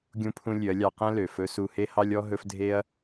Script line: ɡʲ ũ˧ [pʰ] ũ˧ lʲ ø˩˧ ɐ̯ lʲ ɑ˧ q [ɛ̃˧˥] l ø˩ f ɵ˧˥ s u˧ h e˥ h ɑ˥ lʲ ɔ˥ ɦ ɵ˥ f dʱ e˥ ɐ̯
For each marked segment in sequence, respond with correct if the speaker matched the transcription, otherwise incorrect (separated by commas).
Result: correct, incorrect